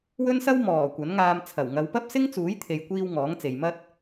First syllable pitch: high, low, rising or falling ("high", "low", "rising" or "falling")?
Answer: high